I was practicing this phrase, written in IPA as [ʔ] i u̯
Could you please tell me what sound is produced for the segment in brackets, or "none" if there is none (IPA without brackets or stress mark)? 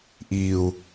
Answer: ʔ